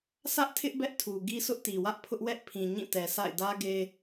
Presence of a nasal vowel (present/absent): present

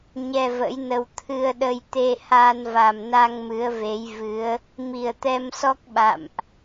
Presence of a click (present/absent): absent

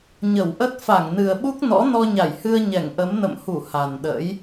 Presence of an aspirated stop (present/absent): absent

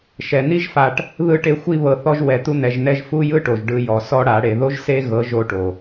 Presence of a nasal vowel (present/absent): absent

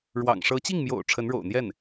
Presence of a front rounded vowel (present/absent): absent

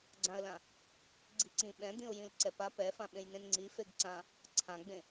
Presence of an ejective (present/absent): absent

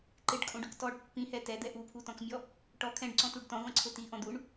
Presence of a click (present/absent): present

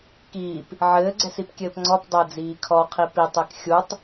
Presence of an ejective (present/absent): absent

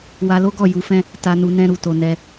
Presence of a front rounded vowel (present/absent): absent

